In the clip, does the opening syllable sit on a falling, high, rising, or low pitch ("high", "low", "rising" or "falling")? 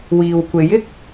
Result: low